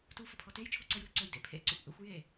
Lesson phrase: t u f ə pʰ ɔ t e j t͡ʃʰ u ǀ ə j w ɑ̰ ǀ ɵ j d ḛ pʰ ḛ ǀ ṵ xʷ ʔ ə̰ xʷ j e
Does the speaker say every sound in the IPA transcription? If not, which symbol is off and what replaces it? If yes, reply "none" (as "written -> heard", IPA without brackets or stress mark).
ɑ̰ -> ə̰